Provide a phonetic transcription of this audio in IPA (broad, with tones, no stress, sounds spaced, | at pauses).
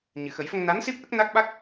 ɲ ɨ˨˩˨ x ə˨˩˦ j f ə˧ ŋ n a˧˥ n s i˦˥ p̚ ʔ ə˦˥ k̚ n a˦˥ k̚ ɓ a˦˥ k̚